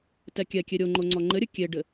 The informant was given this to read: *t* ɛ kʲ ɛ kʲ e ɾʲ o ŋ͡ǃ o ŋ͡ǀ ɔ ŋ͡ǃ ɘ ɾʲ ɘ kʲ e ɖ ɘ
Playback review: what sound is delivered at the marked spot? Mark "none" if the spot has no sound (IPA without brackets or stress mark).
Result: t